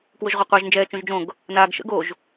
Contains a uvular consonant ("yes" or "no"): yes